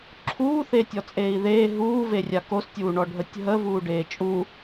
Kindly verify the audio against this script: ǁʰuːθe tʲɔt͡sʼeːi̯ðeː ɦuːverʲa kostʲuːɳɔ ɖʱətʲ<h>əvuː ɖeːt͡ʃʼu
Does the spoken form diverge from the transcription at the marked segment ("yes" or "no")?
yes